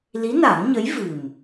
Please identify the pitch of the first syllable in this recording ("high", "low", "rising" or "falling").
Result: rising